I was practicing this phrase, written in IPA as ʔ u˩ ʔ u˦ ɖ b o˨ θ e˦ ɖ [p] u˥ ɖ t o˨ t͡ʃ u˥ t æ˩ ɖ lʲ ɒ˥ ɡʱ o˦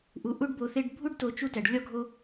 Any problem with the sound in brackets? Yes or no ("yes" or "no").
yes